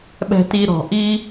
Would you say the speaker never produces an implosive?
no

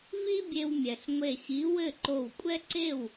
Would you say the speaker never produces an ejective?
no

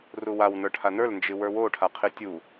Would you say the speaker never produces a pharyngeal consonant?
yes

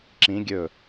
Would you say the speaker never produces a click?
no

